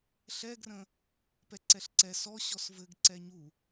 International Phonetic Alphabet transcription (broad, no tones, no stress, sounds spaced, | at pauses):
ɬ ɛ ɡ r ə̃ | p ɛ ǀ ɛ ɬ ǀ ɛ s ɔ ɕ ɔ s v ɘ ɡ ǀ ɛ ɲ u